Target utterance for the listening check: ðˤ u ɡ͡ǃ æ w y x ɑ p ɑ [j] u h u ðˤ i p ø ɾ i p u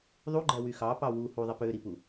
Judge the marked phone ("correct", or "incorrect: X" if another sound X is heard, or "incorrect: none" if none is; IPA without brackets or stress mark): incorrect: w